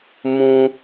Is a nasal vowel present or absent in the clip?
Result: present